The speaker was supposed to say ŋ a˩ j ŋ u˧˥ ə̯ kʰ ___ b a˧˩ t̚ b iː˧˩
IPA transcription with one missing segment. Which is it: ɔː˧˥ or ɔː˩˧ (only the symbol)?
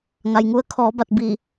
ɔː˩˧